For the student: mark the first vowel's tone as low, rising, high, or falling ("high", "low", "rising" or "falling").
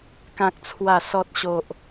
low